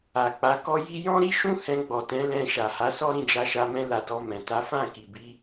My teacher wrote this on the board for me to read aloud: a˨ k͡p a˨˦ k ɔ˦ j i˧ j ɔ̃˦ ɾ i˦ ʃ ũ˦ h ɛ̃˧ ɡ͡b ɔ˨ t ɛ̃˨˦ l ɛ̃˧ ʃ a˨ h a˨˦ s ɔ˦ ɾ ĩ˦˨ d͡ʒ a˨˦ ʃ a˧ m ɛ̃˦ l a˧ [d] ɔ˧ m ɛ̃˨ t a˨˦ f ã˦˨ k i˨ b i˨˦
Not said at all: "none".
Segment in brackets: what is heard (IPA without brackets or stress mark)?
d